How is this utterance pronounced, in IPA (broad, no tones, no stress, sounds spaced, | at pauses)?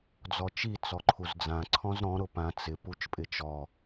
d͡z ɔ t͡ʃ i t͡s ɔ ǃʰ u z d͡z ã ǀʰ ɔ̃ z ɾ ɔ̃ ɾ ʊ p ã t͡s ɪ p u t͡ʃ pʼ ɪ t͡ʃ ɔ